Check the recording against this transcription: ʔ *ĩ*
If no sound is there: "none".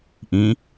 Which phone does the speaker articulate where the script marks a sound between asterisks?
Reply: ĩ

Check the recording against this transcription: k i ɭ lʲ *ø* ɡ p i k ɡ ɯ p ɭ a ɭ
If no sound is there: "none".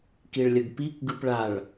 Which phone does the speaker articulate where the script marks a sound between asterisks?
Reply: ə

